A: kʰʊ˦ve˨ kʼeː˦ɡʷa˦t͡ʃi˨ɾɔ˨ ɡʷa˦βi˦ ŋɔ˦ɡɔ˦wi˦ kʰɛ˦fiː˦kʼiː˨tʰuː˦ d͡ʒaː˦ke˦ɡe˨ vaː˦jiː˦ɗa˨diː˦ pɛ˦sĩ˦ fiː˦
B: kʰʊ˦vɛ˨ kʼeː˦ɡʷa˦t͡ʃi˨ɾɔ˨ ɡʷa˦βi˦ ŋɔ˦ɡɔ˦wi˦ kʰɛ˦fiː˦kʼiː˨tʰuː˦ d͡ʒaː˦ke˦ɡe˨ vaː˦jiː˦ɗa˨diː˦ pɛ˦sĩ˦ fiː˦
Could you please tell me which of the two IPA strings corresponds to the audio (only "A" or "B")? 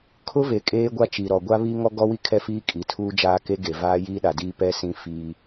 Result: A